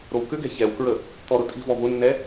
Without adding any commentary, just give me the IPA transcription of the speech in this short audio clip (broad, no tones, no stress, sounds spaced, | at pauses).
ɾ o w k ʏ ɡ ɛ̤ ç ɛ w k ɹ ə | t̪ ɔ ɾ ʊ tʼ i̤ v ɔ v ʊ nː ɛ